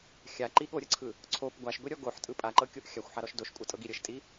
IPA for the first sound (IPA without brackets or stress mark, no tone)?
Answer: xʲ